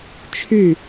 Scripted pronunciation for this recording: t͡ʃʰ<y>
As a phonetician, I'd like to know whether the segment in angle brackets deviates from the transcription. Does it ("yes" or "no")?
no